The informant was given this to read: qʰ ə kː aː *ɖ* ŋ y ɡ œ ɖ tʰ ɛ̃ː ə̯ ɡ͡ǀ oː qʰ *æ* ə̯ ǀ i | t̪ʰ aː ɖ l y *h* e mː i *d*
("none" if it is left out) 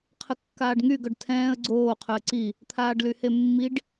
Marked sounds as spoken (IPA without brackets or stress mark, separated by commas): ɖ, œ, h, ɖ